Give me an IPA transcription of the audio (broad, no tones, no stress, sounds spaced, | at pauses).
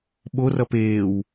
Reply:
ɓ o r ʌ p eː w